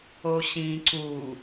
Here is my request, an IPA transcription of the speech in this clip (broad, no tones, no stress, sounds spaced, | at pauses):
o ɕ ĩ ǀ u